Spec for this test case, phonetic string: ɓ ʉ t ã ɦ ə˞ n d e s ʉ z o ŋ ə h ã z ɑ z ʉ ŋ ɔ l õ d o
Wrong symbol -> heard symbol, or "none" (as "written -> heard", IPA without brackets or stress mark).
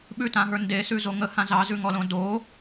none